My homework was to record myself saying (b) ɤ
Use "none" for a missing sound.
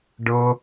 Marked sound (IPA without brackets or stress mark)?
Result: ɖ